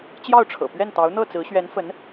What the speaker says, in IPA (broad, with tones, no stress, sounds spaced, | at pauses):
t͡ɕ j ɑ˥˩ ʊ̯ ʈ͡ʂʰ ɤ̰˨˩ p ɥ ɛ˥˩ n t̪ ɑ˧˥ ʊ̯ n̪ ɤ˥˩ t͡s ɹ̩˧˥ ɕ ɥ ɛ˧˥ n f ə˧˥ n